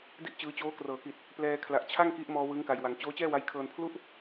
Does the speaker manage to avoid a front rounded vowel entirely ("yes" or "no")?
yes